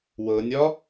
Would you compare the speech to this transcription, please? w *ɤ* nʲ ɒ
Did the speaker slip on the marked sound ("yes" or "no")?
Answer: no